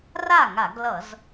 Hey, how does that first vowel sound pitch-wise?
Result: falling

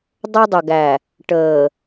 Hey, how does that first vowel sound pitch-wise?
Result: high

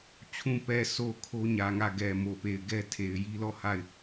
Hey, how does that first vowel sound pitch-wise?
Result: low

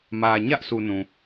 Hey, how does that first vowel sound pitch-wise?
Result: low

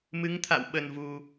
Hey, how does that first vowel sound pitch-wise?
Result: rising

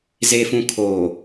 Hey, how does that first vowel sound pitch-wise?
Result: low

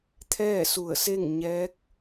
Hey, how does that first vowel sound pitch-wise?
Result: falling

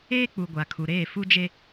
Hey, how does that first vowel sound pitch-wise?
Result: high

